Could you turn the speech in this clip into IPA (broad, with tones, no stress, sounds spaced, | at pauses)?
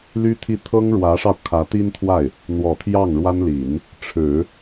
l y˥ t̪ʰ i˥˩ t̪ʰ ɤ˥ ŋ ɻ w ä˧˥ ʂ ɑ˧ ʊ̯ kʰ ä˧˥ t̪ i˥ n t̪ʰ w a˥˩ ɪ̯ | n̪ w ɔ˨˩ t̪ʰ j ɑ˥˩ ŋ ɻ w a˥ n l i˨˩˦ n | ʈ͡ʂʰ ɻ̩˨˩˦